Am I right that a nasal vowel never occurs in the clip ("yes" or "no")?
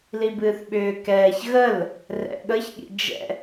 yes